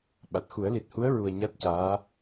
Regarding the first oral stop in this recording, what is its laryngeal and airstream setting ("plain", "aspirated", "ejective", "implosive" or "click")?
implosive